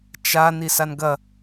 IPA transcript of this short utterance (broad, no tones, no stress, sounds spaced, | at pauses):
t͡ʃ a n i s a n ɡ ɐ